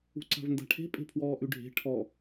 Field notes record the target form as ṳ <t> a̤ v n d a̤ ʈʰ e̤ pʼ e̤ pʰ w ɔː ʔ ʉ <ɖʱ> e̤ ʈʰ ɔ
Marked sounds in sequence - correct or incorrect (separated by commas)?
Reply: incorrect, correct